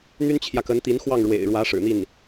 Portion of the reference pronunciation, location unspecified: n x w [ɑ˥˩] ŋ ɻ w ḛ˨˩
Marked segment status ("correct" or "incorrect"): correct